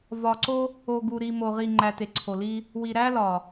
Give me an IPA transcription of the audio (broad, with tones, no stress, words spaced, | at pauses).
vɒ˨ǀo˦ | o˨ɡu˨ɾi˨ mo˨ʁi˨ŋ͡ǃæ˨ te˨ǀʰo˨li˦ | wi˨ ɾæ˦lɒ˨